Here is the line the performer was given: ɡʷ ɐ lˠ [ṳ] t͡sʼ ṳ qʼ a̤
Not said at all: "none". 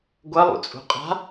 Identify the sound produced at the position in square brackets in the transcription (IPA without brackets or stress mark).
ṵ